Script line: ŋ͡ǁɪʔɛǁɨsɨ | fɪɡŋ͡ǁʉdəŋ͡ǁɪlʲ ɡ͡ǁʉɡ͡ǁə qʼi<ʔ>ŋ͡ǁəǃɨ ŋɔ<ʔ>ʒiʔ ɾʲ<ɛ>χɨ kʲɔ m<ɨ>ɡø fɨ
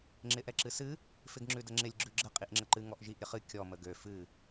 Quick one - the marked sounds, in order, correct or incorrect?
correct, correct, incorrect, incorrect

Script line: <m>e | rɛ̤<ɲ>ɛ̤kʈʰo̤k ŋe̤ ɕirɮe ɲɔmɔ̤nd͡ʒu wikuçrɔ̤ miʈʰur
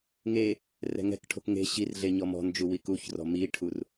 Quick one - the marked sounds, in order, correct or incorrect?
incorrect, incorrect

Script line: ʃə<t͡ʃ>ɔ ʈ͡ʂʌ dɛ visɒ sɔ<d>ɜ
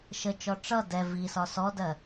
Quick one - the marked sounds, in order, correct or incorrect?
correct, correct

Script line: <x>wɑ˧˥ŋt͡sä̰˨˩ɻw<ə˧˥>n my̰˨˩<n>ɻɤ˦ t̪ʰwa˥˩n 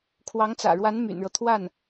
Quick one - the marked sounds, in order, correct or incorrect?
incorrect, incorrect, correct

